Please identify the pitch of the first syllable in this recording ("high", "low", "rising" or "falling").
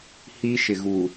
high